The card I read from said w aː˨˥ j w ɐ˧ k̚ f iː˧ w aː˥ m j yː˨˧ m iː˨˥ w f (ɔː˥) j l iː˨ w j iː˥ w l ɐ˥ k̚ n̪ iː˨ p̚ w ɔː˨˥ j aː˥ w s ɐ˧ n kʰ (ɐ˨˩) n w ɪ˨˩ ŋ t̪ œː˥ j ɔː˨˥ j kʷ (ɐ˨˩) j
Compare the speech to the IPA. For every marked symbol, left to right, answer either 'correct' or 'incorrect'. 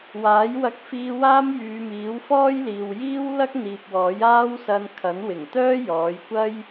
correct, incorrect: ɐ˨˥, incorrect: ɐ˥

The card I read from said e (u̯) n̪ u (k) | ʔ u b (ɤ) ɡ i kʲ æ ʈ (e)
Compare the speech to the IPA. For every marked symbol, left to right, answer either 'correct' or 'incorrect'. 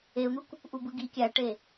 correct, correct, incorrect: ɯ, correct

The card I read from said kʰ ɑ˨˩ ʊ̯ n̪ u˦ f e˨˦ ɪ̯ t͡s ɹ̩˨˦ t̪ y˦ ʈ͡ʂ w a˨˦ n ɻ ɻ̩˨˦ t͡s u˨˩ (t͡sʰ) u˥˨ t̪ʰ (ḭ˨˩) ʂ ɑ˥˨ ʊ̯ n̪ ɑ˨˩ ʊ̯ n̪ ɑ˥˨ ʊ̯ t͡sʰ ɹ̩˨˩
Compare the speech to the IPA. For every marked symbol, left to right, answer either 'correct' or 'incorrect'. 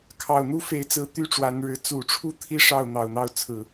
incorrect: ʈ͡ʂʰ, incorrect: i˦

